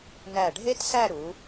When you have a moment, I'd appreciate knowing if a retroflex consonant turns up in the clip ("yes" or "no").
yes